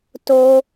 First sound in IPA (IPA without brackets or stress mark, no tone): t